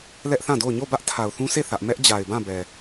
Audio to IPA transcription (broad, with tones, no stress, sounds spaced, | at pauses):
l ɛ˦ ʔ θ ã˦˨ d o˦˨ ʊ̯ ɲ o˦˨ b ä˦ ʔ tʰ a˨ ʊ̯ θ ũ˦ sʰ e˦˨ θ ä˦ ʔ m ɛ˦ ʔ d͡ʑ a˨ ɪ̯ b ã˦˨ b ɛ˨